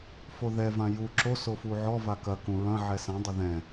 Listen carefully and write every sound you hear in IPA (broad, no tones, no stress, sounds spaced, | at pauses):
f o ð ɛ v ã j u ǁ o s o f u ʕ ɔ v a k ɐ k ũ ɹ ɐ̃ ʕ ɛ s ã dˤ ɘ ð ɛ̃